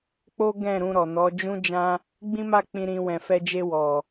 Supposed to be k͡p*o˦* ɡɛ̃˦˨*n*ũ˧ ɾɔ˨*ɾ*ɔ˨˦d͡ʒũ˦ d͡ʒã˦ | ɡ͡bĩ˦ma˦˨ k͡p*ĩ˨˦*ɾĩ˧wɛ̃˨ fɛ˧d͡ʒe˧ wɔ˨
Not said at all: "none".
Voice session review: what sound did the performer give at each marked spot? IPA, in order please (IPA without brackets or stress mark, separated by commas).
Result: o˦, ɾ, n, ĩ˧